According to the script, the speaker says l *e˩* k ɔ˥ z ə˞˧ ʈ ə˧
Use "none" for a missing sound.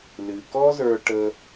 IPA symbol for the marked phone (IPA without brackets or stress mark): ɨ˩